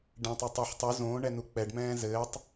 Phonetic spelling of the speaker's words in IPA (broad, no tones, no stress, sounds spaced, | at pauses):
ɖ ɛ̃ tˤ o tˤ o ħ tˤ u z õː ɳ ɛ n u k͡p ɛ ɖ m ɛ̃ː z ɘː tˤ